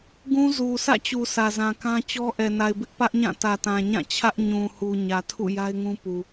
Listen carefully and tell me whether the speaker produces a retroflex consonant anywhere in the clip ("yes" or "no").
no